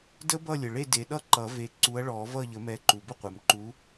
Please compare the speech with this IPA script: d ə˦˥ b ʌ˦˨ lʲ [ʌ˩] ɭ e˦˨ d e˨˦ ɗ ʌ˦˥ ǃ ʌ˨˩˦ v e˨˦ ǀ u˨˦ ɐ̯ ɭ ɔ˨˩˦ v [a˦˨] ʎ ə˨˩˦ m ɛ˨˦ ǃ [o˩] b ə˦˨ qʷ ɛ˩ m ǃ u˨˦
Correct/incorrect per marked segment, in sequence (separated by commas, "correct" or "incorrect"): incorrect, incorrect, incorrect